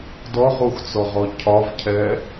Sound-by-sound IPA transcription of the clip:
d ɔ ʁ u x t͡s ɔ ʁ ɔ cʰ ɒ v cʰ ɛ

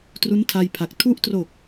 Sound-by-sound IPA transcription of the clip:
t r u˦˥ n tʰ a˧ j pʰ a˨˩ k̚ tʰ u˦˥ ʔ t r o˨˩ k̚

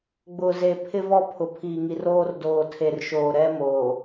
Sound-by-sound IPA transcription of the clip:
ɡ͡b ʊ˨ z e˨ pʰ ɪ˦ v ɔ˦ pʰ ʊ˨ pʰ iː˨ ŋ i˨ r oː˦ r d oː˨ tʰ e˨ r ʃ oː˨ ɾ ɛ˦ m oː˨

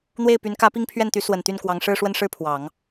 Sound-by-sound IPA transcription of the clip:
n̪ w e˥˩ ɪ̯ p y˧˥ n k ä˧˥ p i˥˧ ŋ pʰ ɥ ɛ˥˩ n t̪ y˧˥ s w ə˨˩ n t̪ y˥˩ n k w ɑ˧˥ ŋ ʂ ɻ̩˥˧ ʂ w ə˥˧ n ʂ ɻ̩˥˩ pʰ w ɑ˨˩˦ ŋ

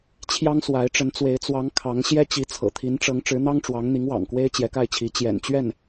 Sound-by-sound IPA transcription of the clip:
t͡ɕʰ j ɑ˥ ŋ s w a˧˥ ɪ̯ ʈ͡ʂ ə˧˥ n t͡s w e˧˥ ɪ̯ t͡s w ɑ˧˥ ŋ kʰ ɑ˧˥ ŋ ɕ j ɛ˥ t͡ɕ i˧˥ t͡sʰ ɤ̰˨˩ t̪ʰ i˧˥ n ʈ͡ʂ ɤ˧˥ ŋ ʈ͡ʂ ɻ̩˧˥ n̪ ɑ˥ ŋ ʈ͡ʂ w ɑ˧˥ ŋ n̪ i˧˥ ŋ w ɑ̰˨˩ ŋ k w e˥ ɪ̯ t͡ɕ j ɛ˧˥ k a˥˩ ɪ̯ t͡ɕʰ i˧˥ t͡ɕ j ɛ̰˨˩ n t͡ɕ ɥ ɛ˥˩ n

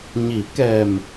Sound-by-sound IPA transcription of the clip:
ɲ i˨˩˦ k ɛ˨˩ m

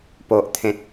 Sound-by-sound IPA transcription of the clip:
p o˨ ʔ t̪ʰ ẽ˨ t̚

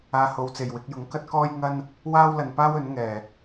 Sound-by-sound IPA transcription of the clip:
aː˧ h o˨ w t͡s e˨˩ j w ɪ˧ k̚ j ʊ˨˥ ŋ k ɐ˥ t̚ k ɔː˥ j ŋ ɐ˥ n | w aː˥ w l ɐ˨ n p aː˥ w ɵ˨˥ n ŋ ɛː˨˩

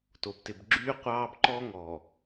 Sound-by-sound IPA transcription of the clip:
t o˨ b t ɪ˨ b ɡ͡ǁ yː˦ qʷ ɑː˦ b ǃ ɔ˦ ŋ ɔ˨

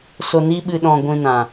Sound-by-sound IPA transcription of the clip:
s o˧ n i˦ ɓ ɨ˧ ɗ ɔ̃˧ ɡʷ ĩ˧ n ã˨

